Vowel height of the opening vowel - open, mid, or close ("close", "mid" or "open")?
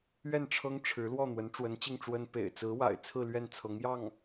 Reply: mid